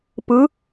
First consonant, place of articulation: labial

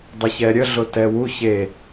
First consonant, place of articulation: alveolar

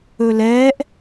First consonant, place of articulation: alveolar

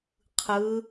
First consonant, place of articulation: uvular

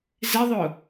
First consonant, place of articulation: alveolar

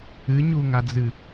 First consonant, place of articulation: palatal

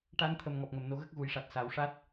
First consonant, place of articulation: retroflex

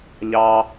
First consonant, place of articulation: palatal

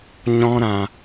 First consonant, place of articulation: palatal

